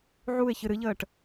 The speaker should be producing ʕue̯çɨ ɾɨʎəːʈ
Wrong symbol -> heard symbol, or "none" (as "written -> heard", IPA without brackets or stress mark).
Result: none